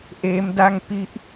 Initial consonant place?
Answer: glottal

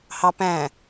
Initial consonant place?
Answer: glottal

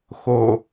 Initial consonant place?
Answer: velar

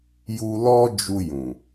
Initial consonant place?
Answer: palatal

